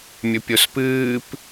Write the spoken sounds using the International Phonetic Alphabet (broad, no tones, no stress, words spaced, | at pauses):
mʲɵpʲospɨːp